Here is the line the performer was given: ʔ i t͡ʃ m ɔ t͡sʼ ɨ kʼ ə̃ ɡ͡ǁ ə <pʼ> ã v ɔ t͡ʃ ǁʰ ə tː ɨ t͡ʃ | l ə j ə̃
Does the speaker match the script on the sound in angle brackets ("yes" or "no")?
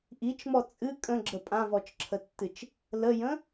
yes